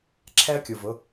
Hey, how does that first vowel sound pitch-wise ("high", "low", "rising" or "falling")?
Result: high